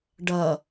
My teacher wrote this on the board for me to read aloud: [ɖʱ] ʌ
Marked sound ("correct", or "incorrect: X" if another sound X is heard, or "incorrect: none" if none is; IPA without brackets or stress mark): incorrect: ɖ